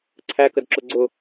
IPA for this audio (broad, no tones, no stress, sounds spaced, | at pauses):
ǀʰ æ k ə d ǁ ʊ ɡ͡ǀ ʊ